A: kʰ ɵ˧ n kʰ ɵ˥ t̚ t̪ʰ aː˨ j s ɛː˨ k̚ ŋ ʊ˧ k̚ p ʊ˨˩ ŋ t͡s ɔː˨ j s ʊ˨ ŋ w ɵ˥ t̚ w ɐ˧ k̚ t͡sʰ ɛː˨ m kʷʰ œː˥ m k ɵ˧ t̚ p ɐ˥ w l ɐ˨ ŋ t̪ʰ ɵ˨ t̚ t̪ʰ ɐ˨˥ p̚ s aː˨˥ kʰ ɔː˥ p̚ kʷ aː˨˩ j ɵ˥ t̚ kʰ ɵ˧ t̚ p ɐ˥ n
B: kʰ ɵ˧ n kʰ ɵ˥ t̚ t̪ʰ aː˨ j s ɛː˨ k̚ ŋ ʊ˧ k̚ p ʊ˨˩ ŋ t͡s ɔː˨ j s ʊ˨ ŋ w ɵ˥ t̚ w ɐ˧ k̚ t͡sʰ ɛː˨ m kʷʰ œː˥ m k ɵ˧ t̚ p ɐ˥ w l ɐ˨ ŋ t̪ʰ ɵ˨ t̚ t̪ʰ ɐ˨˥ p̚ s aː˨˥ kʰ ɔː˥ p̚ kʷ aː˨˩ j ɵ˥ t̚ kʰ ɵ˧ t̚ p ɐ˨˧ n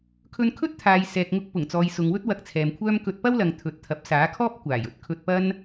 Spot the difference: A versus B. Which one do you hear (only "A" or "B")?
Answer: A